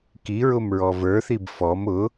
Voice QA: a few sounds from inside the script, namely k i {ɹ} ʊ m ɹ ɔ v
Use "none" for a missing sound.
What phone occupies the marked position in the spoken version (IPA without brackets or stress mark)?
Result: ɹ